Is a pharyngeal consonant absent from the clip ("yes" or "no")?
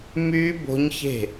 yes